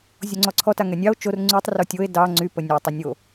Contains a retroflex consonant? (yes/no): no